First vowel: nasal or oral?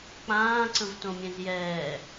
nasal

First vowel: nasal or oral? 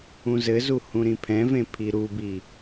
nasal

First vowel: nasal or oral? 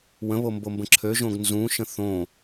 nasal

